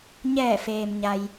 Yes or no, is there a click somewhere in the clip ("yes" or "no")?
no